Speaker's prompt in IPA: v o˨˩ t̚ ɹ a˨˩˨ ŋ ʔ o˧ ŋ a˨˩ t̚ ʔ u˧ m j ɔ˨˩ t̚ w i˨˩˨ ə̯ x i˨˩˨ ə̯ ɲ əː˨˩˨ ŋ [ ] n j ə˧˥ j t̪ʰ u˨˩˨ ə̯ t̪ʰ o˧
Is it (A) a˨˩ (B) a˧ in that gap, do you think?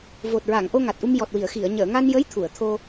B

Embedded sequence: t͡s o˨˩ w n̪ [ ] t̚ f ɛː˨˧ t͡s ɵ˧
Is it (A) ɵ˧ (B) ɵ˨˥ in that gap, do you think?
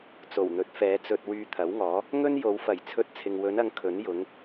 B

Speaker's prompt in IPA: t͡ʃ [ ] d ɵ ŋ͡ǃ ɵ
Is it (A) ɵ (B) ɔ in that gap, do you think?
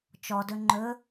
B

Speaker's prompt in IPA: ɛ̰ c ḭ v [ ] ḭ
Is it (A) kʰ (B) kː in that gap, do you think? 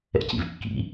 B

